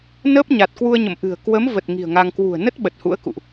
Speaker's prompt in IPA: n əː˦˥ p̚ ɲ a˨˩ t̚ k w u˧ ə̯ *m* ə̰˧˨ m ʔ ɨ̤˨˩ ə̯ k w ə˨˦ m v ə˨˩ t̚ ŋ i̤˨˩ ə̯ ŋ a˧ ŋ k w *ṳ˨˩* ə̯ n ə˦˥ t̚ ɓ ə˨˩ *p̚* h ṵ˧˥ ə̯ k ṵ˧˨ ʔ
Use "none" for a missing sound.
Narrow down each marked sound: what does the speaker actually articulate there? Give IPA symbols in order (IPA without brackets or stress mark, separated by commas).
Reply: ɲ, ṳ˨˩, t̚